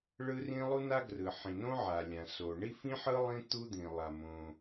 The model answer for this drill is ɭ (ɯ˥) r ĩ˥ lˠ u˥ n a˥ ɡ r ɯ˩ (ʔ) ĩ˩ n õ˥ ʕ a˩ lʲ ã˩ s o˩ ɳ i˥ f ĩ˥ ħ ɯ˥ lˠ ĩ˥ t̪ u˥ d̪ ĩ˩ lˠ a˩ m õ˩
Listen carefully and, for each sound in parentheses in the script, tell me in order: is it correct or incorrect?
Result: correct, incorrect: ħ

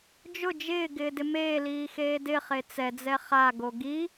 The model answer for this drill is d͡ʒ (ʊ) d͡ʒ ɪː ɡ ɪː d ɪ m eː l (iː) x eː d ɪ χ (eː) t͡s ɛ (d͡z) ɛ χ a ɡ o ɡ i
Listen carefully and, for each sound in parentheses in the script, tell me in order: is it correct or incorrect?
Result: correct, correct, incorrect: e, correct

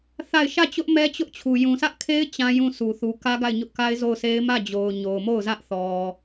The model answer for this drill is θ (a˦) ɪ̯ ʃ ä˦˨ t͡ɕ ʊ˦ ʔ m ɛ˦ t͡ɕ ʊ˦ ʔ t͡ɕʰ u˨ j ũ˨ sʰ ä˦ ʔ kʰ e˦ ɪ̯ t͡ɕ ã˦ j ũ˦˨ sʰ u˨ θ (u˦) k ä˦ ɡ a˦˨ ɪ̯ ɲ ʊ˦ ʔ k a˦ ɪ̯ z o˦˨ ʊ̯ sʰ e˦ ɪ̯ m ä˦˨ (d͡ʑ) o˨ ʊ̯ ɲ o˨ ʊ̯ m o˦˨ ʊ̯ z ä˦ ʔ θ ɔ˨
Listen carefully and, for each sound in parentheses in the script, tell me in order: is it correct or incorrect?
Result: incorrect: a˦˨, incorrect: u˨, correct

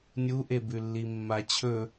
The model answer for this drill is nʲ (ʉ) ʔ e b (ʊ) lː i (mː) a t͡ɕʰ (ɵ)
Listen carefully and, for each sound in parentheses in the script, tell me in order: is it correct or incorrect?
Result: incorrect: u, incorrect: ʉ, correct, correct

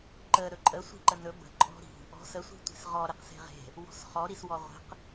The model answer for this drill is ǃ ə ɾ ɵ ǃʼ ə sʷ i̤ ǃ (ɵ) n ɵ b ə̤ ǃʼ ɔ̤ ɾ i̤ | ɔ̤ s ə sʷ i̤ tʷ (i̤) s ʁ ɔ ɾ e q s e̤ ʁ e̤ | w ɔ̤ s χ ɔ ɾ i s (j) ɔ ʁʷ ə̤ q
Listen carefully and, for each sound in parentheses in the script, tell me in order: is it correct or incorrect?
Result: incorrect: ə, incorrect: e̤, incorrect: w

